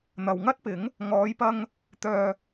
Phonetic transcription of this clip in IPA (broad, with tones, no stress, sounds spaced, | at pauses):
n̪ ɐ˨ w ŋ ɐ˥ t̚ p ɪ˨˥ ŋ | ŋ ɔː˨˧ j p ɐ˧ ŋ | t̪ œː˨